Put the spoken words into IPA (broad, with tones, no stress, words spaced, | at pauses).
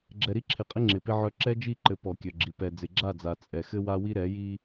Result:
ɡ͡ǁɛ˨ɾi˦ǁʰɪ˨qʼɪ˦ ŋ͡ǁɪ˨pɪ˦ʕœ˦ ǁɛ˦d͡ʒi˦˨ǃɘ˨ pɔ˨kʲœ˨ɡ͡ǁi˨ pɛ˨d͡zɪ˨ɡ͡ǁa˦˨d͡za˨ t͡sʼɛ˨xɘ˦wa˦wi˦ ɾɛ˨˦ji˦